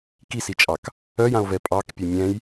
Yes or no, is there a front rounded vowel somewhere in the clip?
yes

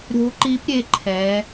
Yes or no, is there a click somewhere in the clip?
yes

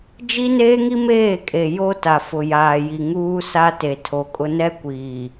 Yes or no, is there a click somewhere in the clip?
no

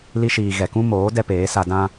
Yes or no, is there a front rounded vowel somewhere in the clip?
no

